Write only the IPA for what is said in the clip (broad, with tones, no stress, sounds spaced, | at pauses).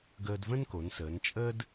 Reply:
ɡ əː˧ d v ə̃˥ n k o˩˧ n s əː˩˧ n t͡ʃʼ ə˥ d